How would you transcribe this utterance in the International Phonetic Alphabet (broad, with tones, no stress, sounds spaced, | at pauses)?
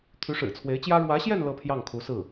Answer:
t̪ʰ y˧˥ ʂ ɻ̩˨˩ t͡sʰ w e˧˥ ɪ̯ t͡ɕ j ä˥ ɻ w ä˧˥ ɕ j ɛ˥˧ n l ɤ˥˧ pʰ j ɑ˥˩ ŋ kʰ u˧˥ s ɹ̩˥˩